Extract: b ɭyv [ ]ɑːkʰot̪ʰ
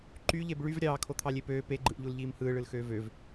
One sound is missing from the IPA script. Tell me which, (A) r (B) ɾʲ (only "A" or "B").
B